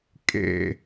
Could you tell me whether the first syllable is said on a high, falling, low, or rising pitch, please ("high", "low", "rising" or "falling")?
low